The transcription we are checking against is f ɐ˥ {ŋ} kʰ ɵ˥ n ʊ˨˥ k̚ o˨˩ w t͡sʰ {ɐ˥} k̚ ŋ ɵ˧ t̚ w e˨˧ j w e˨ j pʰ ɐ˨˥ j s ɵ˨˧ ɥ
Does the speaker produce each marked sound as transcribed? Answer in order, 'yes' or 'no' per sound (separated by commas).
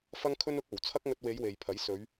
yes, yes